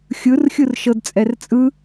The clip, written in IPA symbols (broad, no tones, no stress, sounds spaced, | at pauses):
xʲ ɯ r xʲ ɯ r ʃ ɤ d t͡sʼ ɛ r t͡sʼ ɯ